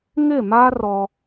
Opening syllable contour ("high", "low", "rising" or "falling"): falling